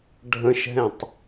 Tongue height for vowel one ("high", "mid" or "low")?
mid